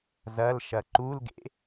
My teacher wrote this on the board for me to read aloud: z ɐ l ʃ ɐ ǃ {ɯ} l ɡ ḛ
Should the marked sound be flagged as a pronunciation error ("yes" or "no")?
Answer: yes